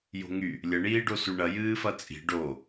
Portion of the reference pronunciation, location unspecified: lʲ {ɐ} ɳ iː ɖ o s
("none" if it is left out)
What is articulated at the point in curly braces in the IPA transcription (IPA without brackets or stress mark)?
ɐ